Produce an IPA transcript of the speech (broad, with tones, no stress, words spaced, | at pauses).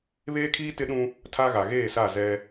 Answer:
βeː˦kʰiː˦ tɪ˦ɗũ˦ | tʰa˦ɣa˨ ɣeː˦˨sa˦˨ zɛ˦